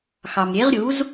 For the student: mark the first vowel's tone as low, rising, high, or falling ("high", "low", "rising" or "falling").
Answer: low